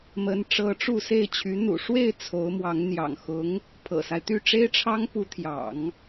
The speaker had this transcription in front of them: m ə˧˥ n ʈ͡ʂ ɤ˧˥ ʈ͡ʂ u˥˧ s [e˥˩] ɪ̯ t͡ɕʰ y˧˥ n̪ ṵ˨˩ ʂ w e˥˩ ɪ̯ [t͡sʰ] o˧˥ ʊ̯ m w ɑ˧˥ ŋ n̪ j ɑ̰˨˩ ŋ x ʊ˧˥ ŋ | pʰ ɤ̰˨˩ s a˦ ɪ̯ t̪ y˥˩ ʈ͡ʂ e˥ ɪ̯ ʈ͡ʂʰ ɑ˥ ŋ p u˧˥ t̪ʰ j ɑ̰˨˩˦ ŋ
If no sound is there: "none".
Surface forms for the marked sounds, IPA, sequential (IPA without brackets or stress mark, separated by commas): e˥˩, t͡sʰ